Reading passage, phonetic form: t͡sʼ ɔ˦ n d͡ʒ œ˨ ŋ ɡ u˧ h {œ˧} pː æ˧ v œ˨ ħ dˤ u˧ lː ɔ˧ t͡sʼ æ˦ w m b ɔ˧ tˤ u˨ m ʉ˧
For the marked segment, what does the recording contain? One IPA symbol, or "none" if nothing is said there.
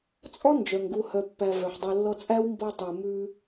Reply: œ˧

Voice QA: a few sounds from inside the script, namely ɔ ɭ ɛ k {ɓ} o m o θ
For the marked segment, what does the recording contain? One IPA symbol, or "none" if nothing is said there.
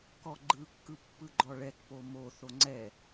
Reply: p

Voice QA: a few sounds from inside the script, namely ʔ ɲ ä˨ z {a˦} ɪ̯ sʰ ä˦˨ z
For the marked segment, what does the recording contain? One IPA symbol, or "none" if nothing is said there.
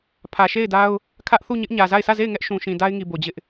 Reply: a˦˨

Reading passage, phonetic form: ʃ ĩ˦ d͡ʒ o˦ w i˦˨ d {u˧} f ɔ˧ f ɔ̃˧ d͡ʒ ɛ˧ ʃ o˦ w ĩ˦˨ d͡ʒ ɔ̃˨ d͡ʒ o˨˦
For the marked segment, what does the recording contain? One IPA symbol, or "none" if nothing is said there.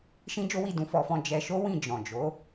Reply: ũ˧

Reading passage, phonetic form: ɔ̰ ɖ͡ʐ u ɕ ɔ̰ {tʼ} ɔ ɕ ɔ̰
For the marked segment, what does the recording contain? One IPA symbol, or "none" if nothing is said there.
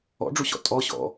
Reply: tʼ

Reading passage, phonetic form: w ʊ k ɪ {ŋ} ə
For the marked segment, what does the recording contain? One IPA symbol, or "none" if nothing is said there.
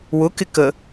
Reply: k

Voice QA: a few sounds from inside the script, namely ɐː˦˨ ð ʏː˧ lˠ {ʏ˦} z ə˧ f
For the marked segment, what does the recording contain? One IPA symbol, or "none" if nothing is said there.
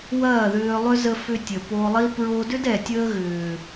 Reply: ʏ˦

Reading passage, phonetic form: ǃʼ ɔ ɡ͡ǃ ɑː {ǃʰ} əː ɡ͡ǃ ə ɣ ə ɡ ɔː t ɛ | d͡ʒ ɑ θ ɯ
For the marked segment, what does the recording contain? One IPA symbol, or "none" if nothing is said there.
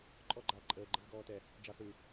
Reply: ǃʼ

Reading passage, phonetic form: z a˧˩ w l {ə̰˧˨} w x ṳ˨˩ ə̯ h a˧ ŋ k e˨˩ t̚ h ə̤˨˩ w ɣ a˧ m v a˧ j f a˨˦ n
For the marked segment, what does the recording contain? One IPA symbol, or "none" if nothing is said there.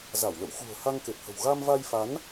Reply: ə̰˧˨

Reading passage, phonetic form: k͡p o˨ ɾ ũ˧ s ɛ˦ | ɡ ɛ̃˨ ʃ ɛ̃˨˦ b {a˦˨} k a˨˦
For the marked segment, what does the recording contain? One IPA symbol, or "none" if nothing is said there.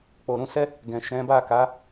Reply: a˦˨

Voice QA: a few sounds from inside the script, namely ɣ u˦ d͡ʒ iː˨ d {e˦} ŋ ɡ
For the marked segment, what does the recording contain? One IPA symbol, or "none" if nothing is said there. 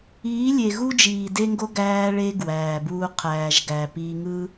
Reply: e˦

